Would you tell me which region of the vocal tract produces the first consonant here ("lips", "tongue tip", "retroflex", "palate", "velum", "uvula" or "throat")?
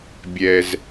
lips